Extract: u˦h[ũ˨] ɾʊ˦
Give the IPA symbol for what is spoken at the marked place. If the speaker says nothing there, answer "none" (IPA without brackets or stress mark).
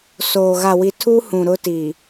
ũ˨